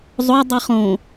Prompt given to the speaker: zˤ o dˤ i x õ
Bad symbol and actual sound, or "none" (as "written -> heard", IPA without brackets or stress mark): x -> χ